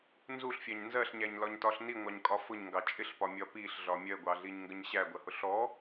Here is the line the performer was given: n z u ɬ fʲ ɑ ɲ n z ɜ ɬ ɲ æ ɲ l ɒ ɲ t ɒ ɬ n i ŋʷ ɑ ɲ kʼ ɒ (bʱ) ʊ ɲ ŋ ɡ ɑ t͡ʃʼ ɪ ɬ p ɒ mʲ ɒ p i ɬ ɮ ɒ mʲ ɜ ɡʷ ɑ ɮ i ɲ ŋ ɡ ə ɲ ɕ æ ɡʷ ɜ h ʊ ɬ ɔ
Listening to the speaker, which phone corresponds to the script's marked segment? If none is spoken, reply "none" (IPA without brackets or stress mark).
f